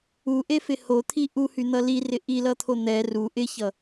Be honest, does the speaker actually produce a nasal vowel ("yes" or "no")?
no